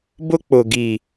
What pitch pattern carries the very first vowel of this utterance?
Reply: high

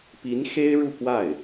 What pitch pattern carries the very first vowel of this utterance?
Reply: rising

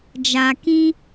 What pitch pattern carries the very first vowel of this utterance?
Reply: low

